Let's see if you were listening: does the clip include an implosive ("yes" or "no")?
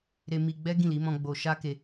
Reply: no